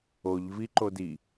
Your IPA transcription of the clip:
o ʎ v i ǃ o d i

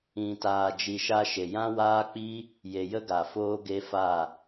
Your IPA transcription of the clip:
ĩ˨ t aː˨ d͡ʒ i˨ ʃ a˧ ʃ e˨ j ã˦ w aː˦ k͡p i˦ | j e˨ j ə˦ ɡ a˨ f oː˦ ɡ e˦ f a˦˨

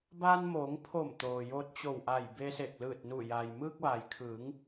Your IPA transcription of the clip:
b aː˧ n m oː˩˧ ŋ pʰ o˧˩ m t̪ oː˩ j o˧ t̚ t͡ɕ o˧˩ w ʔ a˧˩ j b e˧ s e˧˩ k̚ l ɯː˧˩ t̚ n u˧˩ j a˩ j m ɯː˧ k̚ ʋ a˩ j kʰ ɯː˩˧ ŋ

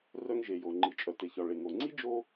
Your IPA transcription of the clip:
r œ˥ ŋ ʒ e˩ j o˩ ŋ͡ǃ i˩ t͡ʃʼ œ˩ t e˩ ç ɒ˩ ɭ e˩ ŋ o˩ ŋ͡ǀ i˥ d͡ʒ o˥

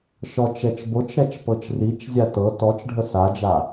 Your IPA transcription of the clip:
ʃ ɔ t͡ʃ ɛ t͡ʃ b o t͡ʃ ɾ ɛ t͡ʃ p ɤ t͡ʃ r i t͡ʃ zʲ a t ɤ t ɔ t͡ʃ ɖʱ ə s a d͡ʒ a

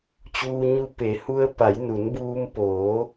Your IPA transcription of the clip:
t͡ɕ uː˧ ɲ u˧˥ p e˩˧ h u˧ ə̯ p a˩˧ j n u˩˧ n b uː˧ m p oː˩˧

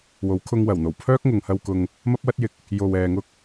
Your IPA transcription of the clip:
w o˨˥ w kʰ ʊ˧ ŋ w ɐ˨˩ w n̪ o˨˩ w pʰ œː˥ k̚ ŋ ʊ˨ ŋ h ɐ˧ w k ʊ˧ ŋ | m ɐ˥ p̚ w ɐ˥ t̚ j ɪ˨ k̚ | j o˨ w ɛː˨ ŋ ʊ˧ k̚

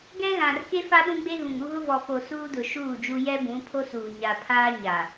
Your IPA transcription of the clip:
ɡ ɛ˦ ɣ ã˨ r k e˦ f a˦ ɗ ũ˦ ɡ͡b e˦ ɣ ũ˨ ŋ u˦ ɣ ʊ˦ v ɔ˨ f o˨ s uː˦ d ʊ˨ ʃ uː˦˨ d͡ʒ u˦ j ɛ˦ b ũ˨˦ pʰ o˦ s uː˨ ɲ a˨ pʰ aː˦ ɲ a˨

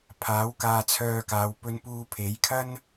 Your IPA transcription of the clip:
pʰ aː˨˥ w k aː˧ t͡sʰ œː˧ k aː˨˧ w p ɵ˥ n p uː˥ pʰ e˨˥ j kʰ ɐ˥ n

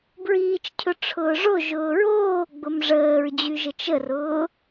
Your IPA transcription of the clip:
b ɹ iː t͡ʃ cʰ ʊ ʈ͡ʂʰ ʊː ʐ o ʒ ʊː ɹ oː ɡ͡b ʊ m ʐ əː ɹ d͡ʑ y ʒ ə t͡ʃ ə r ʊː

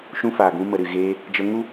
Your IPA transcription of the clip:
ʃ ũ˧ f aː˨ ɡ ũ˧ m ə˨ ɾ ɨ˨ ɣ eː˧ | d͡ʒ ə˧ ŋ u˦

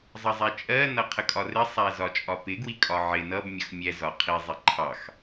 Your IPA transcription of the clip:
zˤ ʌ zˤ ɛ t͡ʃʼ ɜ n ʌ qʰ ə kʼ ɒ r ɪ sˤ æ z ɒ t͡ʃʼ ɒ p ɪ ɡ w i kʼ ɒ ʕ ɪ n ʌ b mʲ ʌ x mʲ ɛ z ɒ qʰ i zˤ ɪ ǃʰ ɑ x

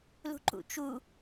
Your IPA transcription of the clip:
l ṳ ǃ ṵ t͡ʃ u

